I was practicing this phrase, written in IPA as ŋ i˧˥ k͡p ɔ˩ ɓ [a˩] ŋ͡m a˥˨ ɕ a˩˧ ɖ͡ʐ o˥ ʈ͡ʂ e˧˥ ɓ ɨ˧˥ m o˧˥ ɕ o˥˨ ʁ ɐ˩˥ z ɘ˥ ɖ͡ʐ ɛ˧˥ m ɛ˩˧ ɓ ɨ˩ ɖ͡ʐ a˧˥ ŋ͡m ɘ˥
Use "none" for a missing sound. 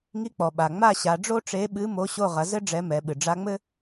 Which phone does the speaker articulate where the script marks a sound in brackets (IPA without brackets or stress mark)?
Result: a˩